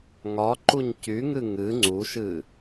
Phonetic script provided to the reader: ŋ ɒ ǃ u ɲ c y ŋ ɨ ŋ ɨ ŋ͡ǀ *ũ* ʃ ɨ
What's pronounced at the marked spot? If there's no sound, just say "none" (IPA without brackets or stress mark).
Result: u